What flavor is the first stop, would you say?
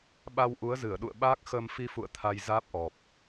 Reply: implosive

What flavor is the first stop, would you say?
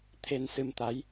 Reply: aspirated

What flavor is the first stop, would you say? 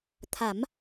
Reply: aspirated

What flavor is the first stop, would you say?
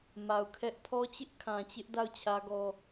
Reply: aspirated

